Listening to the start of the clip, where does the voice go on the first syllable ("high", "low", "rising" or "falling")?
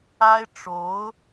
high